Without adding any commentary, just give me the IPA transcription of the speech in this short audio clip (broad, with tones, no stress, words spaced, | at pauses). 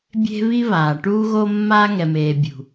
bʲe̤˦βi˦ βaː˨ ʈuː˦ɣo˦ mːaː˦ŋɛ˨meː˨ bʲṳ˨